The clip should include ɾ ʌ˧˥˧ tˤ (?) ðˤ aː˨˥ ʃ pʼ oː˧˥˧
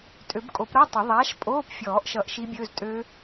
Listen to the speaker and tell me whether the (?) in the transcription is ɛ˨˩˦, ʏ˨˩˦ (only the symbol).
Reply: ʏ˨˩˦